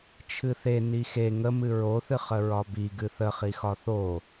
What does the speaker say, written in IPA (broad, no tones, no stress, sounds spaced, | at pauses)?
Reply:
t͡ʃʰ ɨ θ e n i x e ŋ ə m ɨ ɹ o θ ɨ χ ə ɹ ɒ b i ɡ ɨ θ ə χ i x ɒ θ o